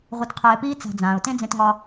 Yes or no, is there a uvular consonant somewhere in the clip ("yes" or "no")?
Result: yes